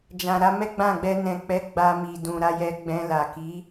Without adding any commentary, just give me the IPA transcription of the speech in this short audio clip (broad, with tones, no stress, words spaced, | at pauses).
d͡ʒã˨ɾa˨˦mɛ˦ ɡ͡bã˦˨ɡ͡bɛ˧ nɛ̃˨k͡pɛ˨˦ ɡ͡ba˧mi˨dũ˨ ɾa˧jɛ˧ɡ͡bɛ̃˧ la˨ki˨˦